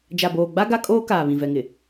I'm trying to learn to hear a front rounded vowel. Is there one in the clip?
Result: no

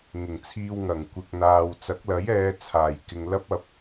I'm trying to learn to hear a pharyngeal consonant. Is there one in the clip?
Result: no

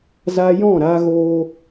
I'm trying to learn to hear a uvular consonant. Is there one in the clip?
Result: no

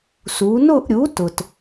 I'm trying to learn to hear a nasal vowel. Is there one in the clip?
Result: no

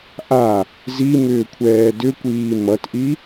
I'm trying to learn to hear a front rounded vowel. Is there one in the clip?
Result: yes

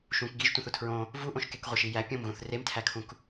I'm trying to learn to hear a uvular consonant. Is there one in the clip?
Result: yes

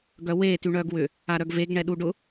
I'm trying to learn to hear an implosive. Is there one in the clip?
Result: yes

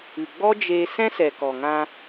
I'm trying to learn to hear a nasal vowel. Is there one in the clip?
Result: yes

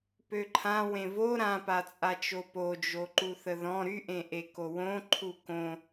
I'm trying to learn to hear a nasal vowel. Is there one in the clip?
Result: yes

